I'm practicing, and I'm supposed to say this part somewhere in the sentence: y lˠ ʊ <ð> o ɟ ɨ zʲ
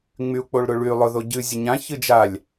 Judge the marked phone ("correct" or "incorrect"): correct